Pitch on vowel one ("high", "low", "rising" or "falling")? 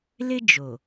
high